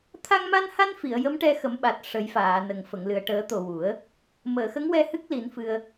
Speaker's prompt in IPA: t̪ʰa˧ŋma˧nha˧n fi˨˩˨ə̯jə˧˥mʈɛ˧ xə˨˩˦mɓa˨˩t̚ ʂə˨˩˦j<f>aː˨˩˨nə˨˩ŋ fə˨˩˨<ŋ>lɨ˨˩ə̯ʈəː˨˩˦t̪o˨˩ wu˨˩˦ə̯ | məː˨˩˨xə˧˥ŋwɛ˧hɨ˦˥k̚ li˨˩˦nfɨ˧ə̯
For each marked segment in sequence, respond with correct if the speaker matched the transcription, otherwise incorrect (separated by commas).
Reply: correct, correct